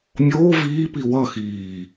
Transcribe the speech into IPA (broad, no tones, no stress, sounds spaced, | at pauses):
mʲ oː v iː p i w ʌ x iː